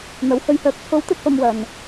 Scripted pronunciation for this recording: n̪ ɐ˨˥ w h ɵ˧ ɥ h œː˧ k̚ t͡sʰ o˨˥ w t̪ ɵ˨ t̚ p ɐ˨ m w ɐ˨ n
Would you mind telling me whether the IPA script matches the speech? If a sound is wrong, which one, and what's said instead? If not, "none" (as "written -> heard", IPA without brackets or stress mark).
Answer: none